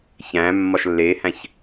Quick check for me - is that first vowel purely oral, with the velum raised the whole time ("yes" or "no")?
no